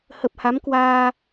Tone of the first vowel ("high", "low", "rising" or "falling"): low